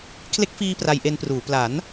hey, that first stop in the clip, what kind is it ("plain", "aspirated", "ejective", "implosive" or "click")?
aspirated